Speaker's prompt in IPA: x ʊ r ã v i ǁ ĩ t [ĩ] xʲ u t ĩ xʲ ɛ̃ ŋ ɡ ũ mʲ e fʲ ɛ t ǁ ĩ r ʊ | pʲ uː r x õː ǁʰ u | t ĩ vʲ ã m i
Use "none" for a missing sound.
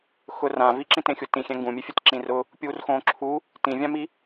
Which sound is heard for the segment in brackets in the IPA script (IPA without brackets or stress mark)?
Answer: ẽ